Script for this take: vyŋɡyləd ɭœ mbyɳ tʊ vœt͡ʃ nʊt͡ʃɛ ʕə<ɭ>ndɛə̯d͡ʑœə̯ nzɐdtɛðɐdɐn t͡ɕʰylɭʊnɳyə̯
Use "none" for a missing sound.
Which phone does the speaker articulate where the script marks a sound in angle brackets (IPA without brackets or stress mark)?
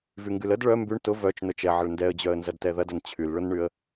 ɭ